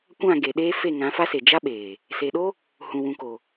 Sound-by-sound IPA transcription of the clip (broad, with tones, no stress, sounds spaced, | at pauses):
kʷ ã˦˨ ɡ e˨ ɗ eː˦ f e˦˨ ŋ ã˨˦ f a˦ s e˨ d͡ʒ a˦ ɓ eː˨ | s e˨ ɗ o˦ | h ũ˨ w ũ˨ k o˨